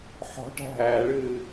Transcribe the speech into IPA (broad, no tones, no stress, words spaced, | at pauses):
ħɔ̤ʈæ̤ ɦæːɭɨː